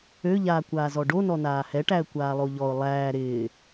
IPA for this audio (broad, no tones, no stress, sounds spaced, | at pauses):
ø ʎ aː kʷ aː z ɔ ɖ o n ɔ n aː h ɛ ʈ æ ə̯ kʷ aː lˠ o ʎ ɔ ʊ̯ lˠ æː ɾ ɪː